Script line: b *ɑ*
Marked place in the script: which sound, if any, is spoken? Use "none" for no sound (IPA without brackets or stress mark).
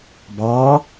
ɑ